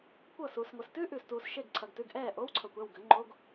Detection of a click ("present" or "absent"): present